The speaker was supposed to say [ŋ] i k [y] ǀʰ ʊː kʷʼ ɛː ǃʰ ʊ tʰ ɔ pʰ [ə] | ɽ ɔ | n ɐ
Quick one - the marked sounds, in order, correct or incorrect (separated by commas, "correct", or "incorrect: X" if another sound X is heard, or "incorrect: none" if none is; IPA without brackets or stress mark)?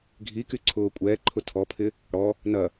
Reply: incorrect: ɡʱ, correct, incorrect: ɪ